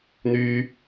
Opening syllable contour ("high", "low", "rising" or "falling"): low